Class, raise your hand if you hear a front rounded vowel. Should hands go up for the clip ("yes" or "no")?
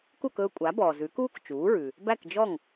no